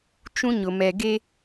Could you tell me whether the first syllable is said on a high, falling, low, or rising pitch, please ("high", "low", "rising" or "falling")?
high